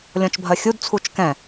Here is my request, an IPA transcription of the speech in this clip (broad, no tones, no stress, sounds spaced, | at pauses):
lʲ ɔ̃ t͡ʃ bʱ ɜ xʲ u d t͡sʰ u t͡ʃ k ɛ̃